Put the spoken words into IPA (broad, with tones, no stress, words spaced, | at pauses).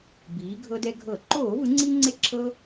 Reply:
biː˩˧ɡʱɤ˧dɛ˧ɡʱɤ˧˩˧ ǃoː˧˩˧vɯ˩˧ŋ͡ǀi˧ŋ͡ǀe˧ ǁʰɤ˧